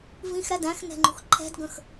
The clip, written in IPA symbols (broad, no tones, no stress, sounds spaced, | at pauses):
v ĩ x ɾ æ d æ̃ x n ɛ̤ ŋ͡ǃ ṳ x ǃʰ ɛ̤ d ɡ ə̃ x